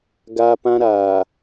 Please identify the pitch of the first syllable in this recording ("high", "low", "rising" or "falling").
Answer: high